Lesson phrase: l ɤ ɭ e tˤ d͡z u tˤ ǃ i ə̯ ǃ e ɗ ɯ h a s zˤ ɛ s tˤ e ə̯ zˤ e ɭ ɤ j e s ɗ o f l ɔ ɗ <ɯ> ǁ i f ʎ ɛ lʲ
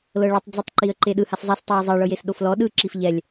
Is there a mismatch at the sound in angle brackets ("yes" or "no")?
no